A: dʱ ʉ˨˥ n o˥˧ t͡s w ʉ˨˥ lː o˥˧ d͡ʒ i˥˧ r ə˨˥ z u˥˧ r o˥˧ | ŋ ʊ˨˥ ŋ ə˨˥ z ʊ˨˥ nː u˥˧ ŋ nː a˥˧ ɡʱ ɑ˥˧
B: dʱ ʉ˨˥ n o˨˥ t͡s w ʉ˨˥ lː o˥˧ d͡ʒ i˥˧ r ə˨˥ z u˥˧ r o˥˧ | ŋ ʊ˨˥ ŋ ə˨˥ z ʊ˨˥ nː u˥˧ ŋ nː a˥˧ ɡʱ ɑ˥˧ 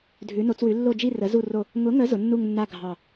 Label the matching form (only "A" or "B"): B